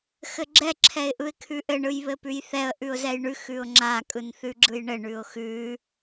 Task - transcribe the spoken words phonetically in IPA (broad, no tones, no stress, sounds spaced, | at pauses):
x ɘ ɡ͡ǁ ɛ ǁʰ ɛ ɪ̯ ʔ ɯ ɪ̯ kʰ ʉ ʔ ɘ ɳ ɯ j β ɘ p ʉ j θ ɛ ə̯ ʔ ʉ ʊ̯ z ɛ j ɳ ʉ x ʉ ʊ̯ ŋ͡ǁ a kʼ ɯ n θ ʉ ɡ͡ǁ ɯ j ɳ ɘ ɳ ʉ ʊ̯ x ʉ